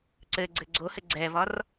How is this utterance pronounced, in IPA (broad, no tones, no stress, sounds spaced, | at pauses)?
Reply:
ǀ ɘ ɡ͡ǀ ɘ ɡ͡ǀ o h ɘ ɡ͡ǀ ɛ v ɒ r